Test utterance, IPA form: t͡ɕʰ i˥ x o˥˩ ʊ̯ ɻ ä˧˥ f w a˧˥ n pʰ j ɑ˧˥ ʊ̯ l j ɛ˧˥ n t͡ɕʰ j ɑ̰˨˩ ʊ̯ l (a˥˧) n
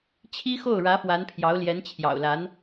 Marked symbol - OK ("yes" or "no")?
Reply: no